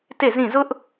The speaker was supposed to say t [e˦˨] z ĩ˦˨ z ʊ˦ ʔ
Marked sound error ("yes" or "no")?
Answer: no